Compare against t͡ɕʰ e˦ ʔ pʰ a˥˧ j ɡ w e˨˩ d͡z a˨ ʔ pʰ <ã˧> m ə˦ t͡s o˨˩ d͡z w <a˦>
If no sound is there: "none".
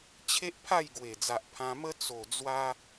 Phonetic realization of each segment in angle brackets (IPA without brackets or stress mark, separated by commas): ã˧, a˧